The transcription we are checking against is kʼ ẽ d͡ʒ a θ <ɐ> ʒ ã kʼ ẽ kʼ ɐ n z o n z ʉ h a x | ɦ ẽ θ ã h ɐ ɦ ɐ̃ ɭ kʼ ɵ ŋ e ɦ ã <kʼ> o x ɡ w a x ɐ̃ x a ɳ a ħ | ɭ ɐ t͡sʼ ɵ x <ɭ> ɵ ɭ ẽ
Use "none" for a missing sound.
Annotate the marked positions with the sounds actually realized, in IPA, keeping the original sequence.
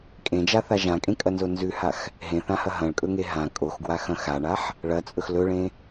a, kʼ, l

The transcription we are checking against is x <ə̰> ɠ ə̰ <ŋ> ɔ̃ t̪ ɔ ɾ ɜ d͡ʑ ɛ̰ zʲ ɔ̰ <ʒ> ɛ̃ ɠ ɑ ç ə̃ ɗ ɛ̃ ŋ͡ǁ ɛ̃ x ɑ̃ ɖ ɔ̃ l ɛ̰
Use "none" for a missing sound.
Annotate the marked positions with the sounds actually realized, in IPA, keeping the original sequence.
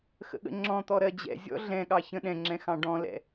ə̰, ŋ͡ǁ, ɮ

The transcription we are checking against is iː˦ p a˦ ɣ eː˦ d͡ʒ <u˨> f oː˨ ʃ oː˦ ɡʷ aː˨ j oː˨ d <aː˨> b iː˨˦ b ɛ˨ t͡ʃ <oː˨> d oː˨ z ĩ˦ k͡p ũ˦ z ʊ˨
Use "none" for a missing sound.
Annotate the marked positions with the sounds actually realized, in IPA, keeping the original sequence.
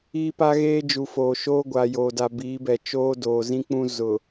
u˨, a˨, oː˦

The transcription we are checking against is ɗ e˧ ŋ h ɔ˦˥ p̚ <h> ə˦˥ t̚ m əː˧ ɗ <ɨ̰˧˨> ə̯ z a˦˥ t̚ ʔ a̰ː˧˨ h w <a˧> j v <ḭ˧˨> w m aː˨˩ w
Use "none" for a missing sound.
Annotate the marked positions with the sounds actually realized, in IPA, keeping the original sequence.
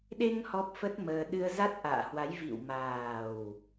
f, ɨ˧, a˨˦, ḭ˧˨

